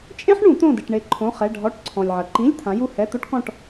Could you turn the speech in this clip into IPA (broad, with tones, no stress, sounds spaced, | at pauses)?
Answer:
t͡ʃʼ ẽ˥ ħ ɳ ũ˨˩˦ t̪ õ˦˨ d ɨ˨ ʈ ɳ e˦˨ ǃʰ õ˧˥˧ χ ɛ˧˥˧ ɖʱ ɔ˧˥˧ ʈ ǀʰ ɔ̃˨ lʲ ʕ ɐ˨ ǃ ĩ˧˥˧ lʲ t̪ʰ ã˨˦ j u˦˨ h ɛ˧˥˧ t̪ o˥ ʈ k ɔ̃˦˨ ʈ